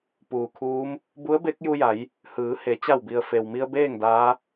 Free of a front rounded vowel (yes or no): yes